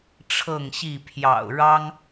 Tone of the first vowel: falling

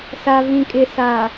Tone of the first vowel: low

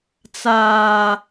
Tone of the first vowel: high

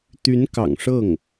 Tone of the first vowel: rising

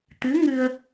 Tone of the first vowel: rising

